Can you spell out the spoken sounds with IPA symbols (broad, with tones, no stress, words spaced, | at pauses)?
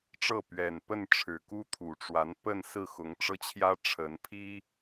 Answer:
ʈ͡ʂɤ˥˩ pɥɛ˨˩npə˥˩n ʈ͡ʂʰɻ̩˨˩ku˥t̪ʰu˨˩ʈ͡ʂwa˧˥n pə˥˧nsɹ̩˥˩ xʊ˧˥ŋʈ͡ʂɤ˥t͡ɕʰjä˥ ʈ͡ʂʰə˧˥n pʰi˥